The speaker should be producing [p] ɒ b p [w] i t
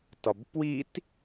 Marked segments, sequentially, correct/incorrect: incorrect: t, correct

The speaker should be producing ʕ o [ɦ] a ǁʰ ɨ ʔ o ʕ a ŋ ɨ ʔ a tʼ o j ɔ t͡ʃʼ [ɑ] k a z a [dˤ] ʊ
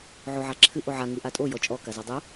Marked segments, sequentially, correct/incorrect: incorrect: ʕ, incorrect: ɔ, correct

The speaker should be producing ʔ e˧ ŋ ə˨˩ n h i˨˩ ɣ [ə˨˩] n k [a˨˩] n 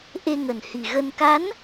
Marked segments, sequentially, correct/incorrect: incorrect: ə˧, incorrect: a˨˦

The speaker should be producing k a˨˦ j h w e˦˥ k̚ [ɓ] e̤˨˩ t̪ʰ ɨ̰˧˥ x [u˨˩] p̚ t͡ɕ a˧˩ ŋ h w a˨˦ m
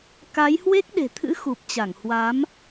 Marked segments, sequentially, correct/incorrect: incorrect: ɗ, correct

